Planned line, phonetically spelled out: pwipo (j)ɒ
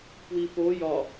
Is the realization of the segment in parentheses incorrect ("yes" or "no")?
no